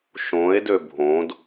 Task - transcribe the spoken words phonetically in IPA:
ʃõe̯dø bʱõd

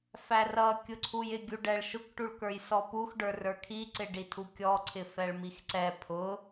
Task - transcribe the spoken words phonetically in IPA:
færʌ kʲʊǀʰujɪ ɡʲuɖɛɭʃʊk ʈuɭkə˞jsɔpux ɖə˞rə˞kʰi ǀɪɖitʰukʲɔ ǀʰɪfɛɭmixǀɛ pʰʊ

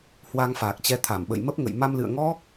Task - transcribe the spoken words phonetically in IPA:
hwa˧ŋfaː˨˩k̚t͡ɕɛ˨˦ t̪ʰa˧˩mɓə̰˧˨jmə˦˥p̚ŋə̰˧˨j ma˧mlɨ̰˧˨ə̯ŋɔ˦˥k̚

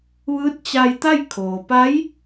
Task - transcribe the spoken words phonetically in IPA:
ʋɯː˧˥t̚t͡ɕa˧jt̪a˥˨j kʰoː˩ pa˧˥j

